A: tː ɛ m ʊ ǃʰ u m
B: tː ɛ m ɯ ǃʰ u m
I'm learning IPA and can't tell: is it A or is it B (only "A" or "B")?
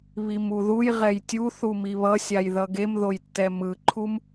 B